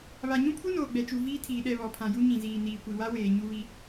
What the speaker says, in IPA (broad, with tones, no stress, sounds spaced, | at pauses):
β a˨ ɲ ũ˦ pʰ u˦ n oː˨ ɡ͡b ɛ˨ t͡ʃ u˨ v iː˦ tʰ iː˨ ɗ ɛ˦˨ β ɔ˨ pʰ ã˨ j u˦ ɲ ĩ˨ z iː˨ n iː˨ kʷ i˨ w a˦ w eː˨ ɲ u˦ β i˦